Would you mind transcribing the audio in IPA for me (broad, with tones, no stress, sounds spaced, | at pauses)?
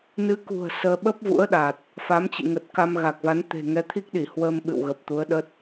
n ɨ˨˦ k ṳ˨˩ ə̯ s əː˧ ɓ ə˦˥ p̚ v ṵ˧˥ ə̯ ɗ a˨˩ t̚ | f a˨˦ m t͡ɕ ḭ˧˨ ŋ ə˨˩ t̚ k a˧ m ɣ a˨˩ k̚ v a˨˦ n t̪ e̤˨˩ ŋ ɛ˨˦ t̪ʰ i˦˥ k̚ ɗ i˧˩ h w əː˧ m ɓ ɨ̰˧˨ w ɣ ə˨˩ p̚ t̪ u˨˦ ə̯ ɗ ə˦˥ t̚